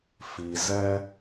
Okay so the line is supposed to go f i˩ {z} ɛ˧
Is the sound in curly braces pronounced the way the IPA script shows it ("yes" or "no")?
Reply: yes